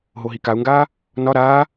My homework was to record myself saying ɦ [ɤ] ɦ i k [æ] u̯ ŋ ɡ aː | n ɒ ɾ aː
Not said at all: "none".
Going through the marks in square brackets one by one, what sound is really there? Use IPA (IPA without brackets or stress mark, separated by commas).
o, a